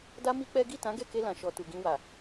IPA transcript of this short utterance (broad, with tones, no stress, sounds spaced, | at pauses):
d a˦ m i˦ k͡p ɛ˦ ɡ i˦˨ t ã˨˦ ɡ ɛ˦˨ k e˧ l ã˨ ʃ ɔ˨ t u˨ ɡ ĩ˧ w a˨